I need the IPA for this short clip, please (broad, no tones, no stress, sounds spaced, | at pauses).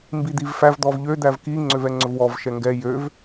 m b i d̪ i v f æ v d̪ ɔ v ʎ ø d̪ æ v k i ŋ͡ǀ ø v ɛ ŋ͡ǀ ɵ v w ɔ v ʃ ɛ ŋ ɡ ɛ j ø v